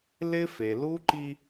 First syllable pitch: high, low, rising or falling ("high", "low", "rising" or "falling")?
high